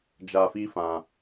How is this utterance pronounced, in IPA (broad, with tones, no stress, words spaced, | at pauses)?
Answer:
d͡ʒa˧fi˦fã˧